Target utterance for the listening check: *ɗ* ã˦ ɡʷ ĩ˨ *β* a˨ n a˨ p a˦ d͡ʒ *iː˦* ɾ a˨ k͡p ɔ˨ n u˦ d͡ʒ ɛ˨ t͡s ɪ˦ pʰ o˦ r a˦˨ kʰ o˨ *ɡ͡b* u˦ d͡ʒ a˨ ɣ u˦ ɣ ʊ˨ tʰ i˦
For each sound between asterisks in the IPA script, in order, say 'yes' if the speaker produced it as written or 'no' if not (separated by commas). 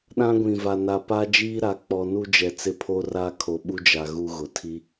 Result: yes, no, yes, no